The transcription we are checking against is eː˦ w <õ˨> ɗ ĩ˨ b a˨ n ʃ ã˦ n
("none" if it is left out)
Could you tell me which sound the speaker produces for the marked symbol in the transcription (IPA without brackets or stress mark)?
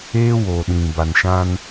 o˨